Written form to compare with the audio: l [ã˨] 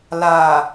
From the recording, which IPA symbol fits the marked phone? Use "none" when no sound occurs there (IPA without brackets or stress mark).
a˨